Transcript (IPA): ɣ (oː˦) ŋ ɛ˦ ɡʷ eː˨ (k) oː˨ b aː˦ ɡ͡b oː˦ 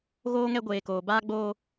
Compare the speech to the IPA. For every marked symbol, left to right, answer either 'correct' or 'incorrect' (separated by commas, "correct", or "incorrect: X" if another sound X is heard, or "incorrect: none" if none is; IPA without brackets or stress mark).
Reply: correct, correct